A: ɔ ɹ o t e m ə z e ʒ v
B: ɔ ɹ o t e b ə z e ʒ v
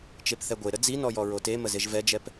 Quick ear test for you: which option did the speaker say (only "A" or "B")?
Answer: A